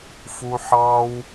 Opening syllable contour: high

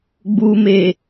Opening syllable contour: low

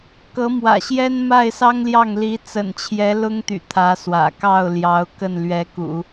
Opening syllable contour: rising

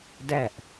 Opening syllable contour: falling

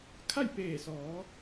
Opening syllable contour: falling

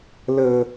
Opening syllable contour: low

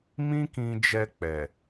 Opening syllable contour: high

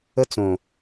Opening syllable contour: high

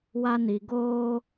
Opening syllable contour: high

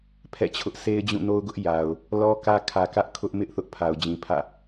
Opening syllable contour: falling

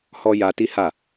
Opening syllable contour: high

